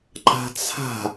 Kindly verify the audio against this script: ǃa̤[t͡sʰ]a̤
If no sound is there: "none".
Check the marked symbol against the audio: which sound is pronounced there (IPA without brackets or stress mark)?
t͡sʰ